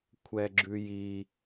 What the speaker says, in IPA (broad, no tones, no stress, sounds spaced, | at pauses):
kʷʰ ɛ ɡ͡ǁ ʉ j i